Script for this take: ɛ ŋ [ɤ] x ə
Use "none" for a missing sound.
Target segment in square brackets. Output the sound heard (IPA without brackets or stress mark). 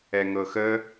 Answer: ɤ